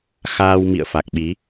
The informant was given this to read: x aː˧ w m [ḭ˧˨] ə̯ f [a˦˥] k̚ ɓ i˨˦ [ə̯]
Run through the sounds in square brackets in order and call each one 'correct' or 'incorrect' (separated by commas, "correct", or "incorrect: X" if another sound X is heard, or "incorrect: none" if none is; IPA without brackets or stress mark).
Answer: correct, incorrect: a˨˩, incorrect: none